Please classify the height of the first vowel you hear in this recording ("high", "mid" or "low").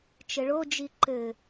mid